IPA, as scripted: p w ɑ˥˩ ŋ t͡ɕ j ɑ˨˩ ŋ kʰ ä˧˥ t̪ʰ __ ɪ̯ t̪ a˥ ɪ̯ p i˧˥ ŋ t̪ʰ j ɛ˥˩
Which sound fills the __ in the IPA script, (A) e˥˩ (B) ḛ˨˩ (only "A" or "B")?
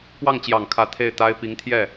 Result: A